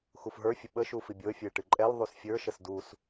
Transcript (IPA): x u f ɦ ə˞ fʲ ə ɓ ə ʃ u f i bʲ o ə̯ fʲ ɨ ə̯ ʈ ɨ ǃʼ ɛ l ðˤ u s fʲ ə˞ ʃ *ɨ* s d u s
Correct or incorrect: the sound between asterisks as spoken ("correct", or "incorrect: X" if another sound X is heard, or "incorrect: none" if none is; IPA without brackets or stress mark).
incorrect: ə